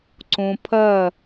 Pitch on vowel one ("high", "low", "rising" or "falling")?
low